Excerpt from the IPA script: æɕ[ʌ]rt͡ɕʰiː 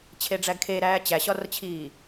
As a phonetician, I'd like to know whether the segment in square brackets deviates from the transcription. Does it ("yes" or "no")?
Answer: yes